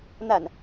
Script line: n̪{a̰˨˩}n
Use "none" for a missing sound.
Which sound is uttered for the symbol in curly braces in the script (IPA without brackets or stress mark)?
a̰˨˩